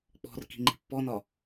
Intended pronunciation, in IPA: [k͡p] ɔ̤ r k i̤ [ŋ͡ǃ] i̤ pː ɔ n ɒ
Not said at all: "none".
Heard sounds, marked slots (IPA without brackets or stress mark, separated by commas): k͡p, ŋ͡ǃ